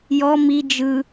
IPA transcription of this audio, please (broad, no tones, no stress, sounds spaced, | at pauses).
j ɔ m i d͡ʒ ɯ